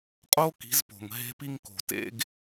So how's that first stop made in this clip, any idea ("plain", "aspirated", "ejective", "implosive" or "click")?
ejective